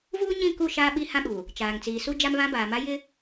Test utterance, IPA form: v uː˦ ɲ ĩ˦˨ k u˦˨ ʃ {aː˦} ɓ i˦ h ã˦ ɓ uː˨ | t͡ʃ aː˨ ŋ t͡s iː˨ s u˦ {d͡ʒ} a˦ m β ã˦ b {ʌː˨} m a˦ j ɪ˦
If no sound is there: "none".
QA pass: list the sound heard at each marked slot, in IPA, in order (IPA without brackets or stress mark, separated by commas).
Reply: aː˦, d͡ʒ, aː˨